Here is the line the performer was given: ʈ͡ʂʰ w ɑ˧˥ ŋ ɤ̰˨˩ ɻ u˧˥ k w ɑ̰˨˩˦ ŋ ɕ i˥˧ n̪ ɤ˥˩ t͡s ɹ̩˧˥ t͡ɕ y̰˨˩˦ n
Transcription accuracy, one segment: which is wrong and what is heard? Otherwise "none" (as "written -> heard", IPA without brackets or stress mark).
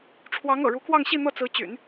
ɑ̰˨˩˦ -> ɑ˥˧